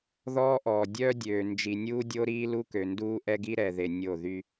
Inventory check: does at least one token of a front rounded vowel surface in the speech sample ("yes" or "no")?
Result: yes